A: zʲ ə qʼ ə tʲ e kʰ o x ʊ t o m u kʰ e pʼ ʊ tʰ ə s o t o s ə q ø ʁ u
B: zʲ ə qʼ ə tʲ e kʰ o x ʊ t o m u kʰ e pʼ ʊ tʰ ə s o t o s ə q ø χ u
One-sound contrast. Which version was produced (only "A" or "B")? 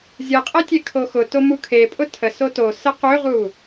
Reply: A